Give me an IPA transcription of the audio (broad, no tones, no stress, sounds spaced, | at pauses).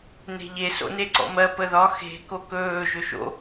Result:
n e̤ ʎ e s o̰ n e ǀ ɔ̰ m ɜ p ə ð ɒ x e̤ k o k ɵː ʒ ɵ ʃ o̰